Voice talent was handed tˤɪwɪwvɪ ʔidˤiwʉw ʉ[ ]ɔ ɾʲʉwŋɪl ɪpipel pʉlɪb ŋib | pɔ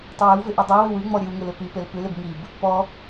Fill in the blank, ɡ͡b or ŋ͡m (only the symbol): ŋ͡m